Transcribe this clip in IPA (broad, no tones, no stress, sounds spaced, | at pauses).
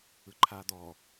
ɯ ǃʰ aː d̪ ɔː